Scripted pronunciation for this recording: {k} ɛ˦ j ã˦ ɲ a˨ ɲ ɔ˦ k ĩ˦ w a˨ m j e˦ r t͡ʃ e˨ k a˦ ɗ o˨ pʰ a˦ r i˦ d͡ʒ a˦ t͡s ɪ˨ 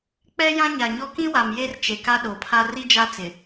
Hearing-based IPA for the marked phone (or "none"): k͡p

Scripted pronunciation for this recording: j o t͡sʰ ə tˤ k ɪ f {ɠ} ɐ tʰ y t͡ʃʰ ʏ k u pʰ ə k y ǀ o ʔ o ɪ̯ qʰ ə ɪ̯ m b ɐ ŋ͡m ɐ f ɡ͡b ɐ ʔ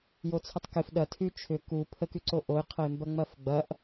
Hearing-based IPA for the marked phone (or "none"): ɗ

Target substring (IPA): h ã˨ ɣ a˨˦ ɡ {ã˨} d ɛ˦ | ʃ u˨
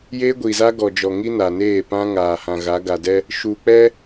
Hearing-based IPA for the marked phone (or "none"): a˨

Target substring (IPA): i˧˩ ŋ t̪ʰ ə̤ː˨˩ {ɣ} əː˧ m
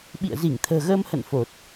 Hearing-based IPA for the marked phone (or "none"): ɣ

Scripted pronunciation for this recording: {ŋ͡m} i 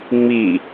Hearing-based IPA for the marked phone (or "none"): ŋ͡m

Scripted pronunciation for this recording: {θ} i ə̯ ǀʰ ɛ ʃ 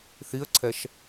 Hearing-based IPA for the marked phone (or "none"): θ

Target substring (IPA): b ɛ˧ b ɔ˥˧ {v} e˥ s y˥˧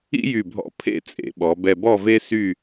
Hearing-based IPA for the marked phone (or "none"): v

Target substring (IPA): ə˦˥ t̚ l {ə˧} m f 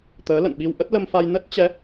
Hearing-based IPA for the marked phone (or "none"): ə˧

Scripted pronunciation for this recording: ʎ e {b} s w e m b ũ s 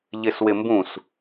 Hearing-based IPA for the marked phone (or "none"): none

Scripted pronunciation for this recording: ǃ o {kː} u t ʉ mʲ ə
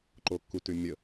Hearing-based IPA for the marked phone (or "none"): kː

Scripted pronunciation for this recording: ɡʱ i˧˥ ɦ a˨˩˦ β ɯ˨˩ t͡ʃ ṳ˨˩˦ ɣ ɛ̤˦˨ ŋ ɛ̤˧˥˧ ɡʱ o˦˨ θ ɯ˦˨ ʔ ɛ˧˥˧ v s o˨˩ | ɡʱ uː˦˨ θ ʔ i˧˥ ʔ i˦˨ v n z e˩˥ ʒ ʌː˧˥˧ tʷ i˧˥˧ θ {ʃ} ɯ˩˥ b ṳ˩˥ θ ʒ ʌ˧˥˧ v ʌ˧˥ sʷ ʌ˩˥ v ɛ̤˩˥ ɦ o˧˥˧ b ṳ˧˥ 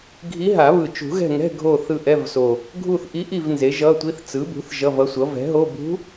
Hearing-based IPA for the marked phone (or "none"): t͡s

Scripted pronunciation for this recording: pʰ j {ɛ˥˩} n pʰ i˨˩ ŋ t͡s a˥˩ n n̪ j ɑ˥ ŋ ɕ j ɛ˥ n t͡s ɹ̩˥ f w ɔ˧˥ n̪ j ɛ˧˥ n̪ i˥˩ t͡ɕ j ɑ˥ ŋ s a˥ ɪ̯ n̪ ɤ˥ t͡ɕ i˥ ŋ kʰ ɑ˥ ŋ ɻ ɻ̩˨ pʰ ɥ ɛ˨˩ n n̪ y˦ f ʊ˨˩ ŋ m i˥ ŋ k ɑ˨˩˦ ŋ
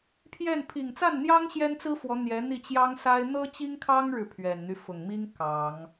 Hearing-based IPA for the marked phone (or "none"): ɛ˥˩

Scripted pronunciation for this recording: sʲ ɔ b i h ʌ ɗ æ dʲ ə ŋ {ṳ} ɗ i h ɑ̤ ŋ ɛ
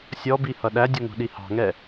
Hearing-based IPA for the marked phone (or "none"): ṳ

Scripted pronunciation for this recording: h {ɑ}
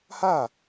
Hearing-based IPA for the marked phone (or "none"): a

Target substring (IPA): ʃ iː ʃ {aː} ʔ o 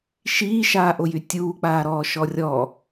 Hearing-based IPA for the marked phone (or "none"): aː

